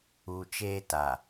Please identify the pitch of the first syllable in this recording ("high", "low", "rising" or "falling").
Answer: low